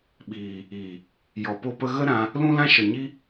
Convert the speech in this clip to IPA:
ɓ iː˨ | i˨ | j ɔ˧ p o˦ p ə˦ ɣ ə˦ ɾ ã˧ | l ũ˦ l ã˦ ʃ ə˨ ɲ i˦

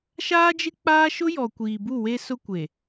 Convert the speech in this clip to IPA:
ʃ aː˦ d͡ʒ ɪ˦ k͡p aː˦ ʃ ʊ˦ j ɔ˨ kʷ iː˨ b u˦˨ w e˦ s ʊ˦ kʷ e˨

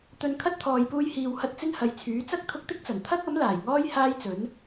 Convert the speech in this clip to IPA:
t̪ ɵ˨ n kʰ ɐ˥ t̚ t̪ʰ ɔː˨ j p uː˧ j h iː˨ w h ɐ˧ t̚ t͡s ɪ˥ ŋ h ɐ˨ j t͡sʰ yː˨˥ t͡s ɐ˥ k̚ t̪ʰ ʊ˧ k̚ t̪ ɪ˥ k̚ t͡s ɐ˨˩ n t̪ʰ ɐ˥ k̚ ɐ˨˥ m l aː˨˩ j ŋ ɔː˥ j h aː˥ j t͡s ɵ˨˥ n

